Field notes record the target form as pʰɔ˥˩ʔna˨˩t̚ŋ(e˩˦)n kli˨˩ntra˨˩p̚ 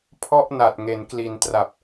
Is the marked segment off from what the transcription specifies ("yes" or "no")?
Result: no